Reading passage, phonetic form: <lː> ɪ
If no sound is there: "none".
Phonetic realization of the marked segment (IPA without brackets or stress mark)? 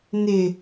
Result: n